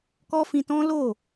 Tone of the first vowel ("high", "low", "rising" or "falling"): high